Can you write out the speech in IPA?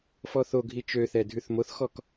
fɔθoɡʱi t͡ʃøθɛ dʱʉθmoθxɔk

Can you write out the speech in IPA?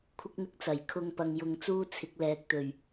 kʷʰɪ˥k̚n̪ɪ˥k̚t͡sɐ˨˩j kʰʊ˧ŋpɐ˨ŋjʊ˨ŋ t͡suː˥t͡sʰɪ˨˥k̚lɛː˨k̚ t̪ɵ˨˩ɥ

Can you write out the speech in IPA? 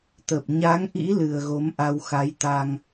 t̪ə˨˩p̚ ɲa˨˦ŋʔḭ˧˥ lɨ˨˩ə̯ɣo˨˦mʔa˧wxa˨˦j t̪a˧ŋ

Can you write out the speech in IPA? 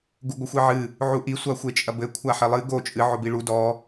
ɡuɡʷɘxʷiʕɨ | ʕuʔi sʷaxʷet͡ʃʼɐbɘ kʷʰaħɘlˠɨ ɡo t͡ʃʼɨ ʕobiɭu dɔ

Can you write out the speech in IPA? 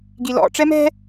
ɡilɔ̰ ʈ͡ʂɛmɛ̤

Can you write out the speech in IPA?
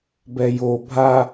bɛjo bʱa

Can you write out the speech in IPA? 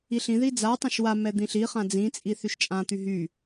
iɬĩði d͡zatˤãʃ wa mɛd̪ĩɬiχã d͡zĩt͡sʼi θyʃt͡ʃʼãt̪y ɦy

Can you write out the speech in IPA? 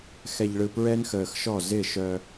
xɛ˨ʎɭɯ˨ pɹɛ˦nxəː˨xʃɔ˦˨ zɪ˦˨ʃœ˦

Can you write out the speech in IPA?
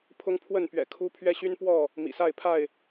pʰʊ˦ŋpʰwə˥˨npɥɛ̰˨˩ kʰu˦ pʰɥɛ˦ɕy˦n pwɔ˥˨ | mḭ˨˩sa˥˨ɪ̯pʰa˥˨ɪ̯

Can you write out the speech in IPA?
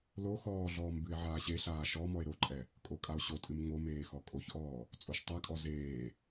lo xɔːɮɔːm bɨe̯ʕaːɕeɬaː ʃɔ mɔe̯ɾoǃʼɛ | kʼokʼao̯ɕotʼɨm ŋomeː xɔkʼoçʔɔː | t͡sʼoʃtˤakʼɔ zeː

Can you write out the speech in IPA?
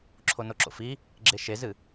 ǁʰonoǁo̰fi | ɡ͡ǁeʃezɨ

